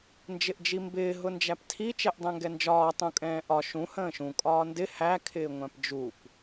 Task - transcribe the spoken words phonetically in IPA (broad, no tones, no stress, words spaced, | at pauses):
nd͡ʒɪʔd͡ʒimbɪː ɦʊnd͡ʒæptʰi t͡ʃɛʔdˤæ̃ŋɡɛnd͡ʒɒː tˤũkʼɛ̃ːʔɒ ʃũ hə̃ːʃũ kʼɒːndɪ hækʰɪː ŋʷæ̃pd͡ʒup